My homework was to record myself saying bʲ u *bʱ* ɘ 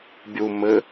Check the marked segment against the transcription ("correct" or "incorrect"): incorrect